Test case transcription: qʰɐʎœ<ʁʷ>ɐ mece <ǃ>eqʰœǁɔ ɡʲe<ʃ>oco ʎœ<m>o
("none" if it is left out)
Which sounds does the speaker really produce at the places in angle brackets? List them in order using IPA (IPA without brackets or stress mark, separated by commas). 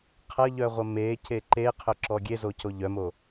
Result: ʁʷ, ǃ, z, m